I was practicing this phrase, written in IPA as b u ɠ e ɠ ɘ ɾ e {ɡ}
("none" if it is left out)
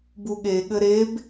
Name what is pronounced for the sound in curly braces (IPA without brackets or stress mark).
b